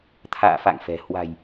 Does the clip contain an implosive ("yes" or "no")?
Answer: no